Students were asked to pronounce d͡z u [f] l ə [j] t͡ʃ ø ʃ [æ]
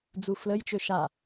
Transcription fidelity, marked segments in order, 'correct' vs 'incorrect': correct, correct, incorrect: a

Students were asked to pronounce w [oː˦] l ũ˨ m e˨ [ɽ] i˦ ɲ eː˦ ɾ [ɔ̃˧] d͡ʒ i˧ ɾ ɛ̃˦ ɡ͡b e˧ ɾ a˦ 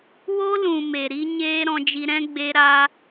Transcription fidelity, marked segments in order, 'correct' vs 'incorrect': incorrect: o˦, incorrect: ɾ, correct

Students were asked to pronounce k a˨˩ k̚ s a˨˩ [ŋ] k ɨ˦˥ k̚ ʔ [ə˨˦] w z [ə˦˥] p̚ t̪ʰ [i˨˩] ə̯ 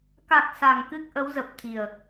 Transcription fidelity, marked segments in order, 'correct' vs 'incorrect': correct, correct, incorrect: ə˨˩, correct

